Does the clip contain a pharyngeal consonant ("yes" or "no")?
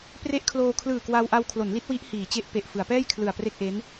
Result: no